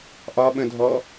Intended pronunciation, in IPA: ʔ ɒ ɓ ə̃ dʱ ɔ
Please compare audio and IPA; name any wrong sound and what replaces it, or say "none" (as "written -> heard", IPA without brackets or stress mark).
none